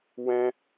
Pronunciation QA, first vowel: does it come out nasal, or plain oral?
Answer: nasal